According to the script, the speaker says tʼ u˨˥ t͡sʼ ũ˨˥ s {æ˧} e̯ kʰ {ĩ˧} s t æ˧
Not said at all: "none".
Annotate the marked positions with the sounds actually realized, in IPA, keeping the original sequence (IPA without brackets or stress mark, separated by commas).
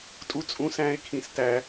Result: æ̃˧, ĩ˧